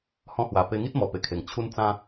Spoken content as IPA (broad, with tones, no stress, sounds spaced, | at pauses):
h ɔ̃˧ h w a˨˩ p e˧ ŋ i˦ t̚ m ɔ˨˩ p e˨˩ kʰ e˨˩ ŋ t͡ɕʰ u˦ n t͡s ã˦